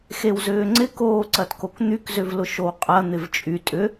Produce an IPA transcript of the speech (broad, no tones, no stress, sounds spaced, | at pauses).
x e w z ʏː ŋ͡ǀ ɪ k oː ǀ ɐ t k o k n̪ y k z ʏ v l ʊ ʃ o w qʼ ɐ n̪ ɪ v t͡ʃʼ y tʼ ʏ